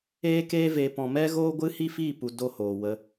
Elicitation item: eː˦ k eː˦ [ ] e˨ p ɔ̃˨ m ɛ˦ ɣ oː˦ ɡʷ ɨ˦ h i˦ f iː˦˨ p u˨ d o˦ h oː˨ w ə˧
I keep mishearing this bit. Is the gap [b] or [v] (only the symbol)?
v